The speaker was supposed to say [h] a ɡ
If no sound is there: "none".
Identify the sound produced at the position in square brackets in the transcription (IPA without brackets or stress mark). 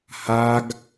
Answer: h